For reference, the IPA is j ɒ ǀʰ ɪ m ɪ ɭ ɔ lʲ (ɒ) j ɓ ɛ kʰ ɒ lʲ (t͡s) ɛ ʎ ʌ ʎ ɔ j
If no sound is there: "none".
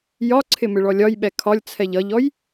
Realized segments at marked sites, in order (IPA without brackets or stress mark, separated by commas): ɒ, t͡sʰ